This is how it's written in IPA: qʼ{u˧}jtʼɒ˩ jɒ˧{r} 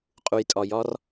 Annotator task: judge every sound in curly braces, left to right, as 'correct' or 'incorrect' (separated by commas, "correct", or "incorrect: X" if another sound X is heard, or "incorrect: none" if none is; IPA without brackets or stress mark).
incorrect: u˩, correct